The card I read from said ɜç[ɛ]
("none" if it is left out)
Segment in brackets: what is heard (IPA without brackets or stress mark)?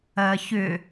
ʏ